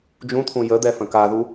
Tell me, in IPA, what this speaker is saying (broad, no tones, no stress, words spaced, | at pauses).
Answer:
d͡ʒũt̪ʰũ jəd̪ɛ fə̃kaðu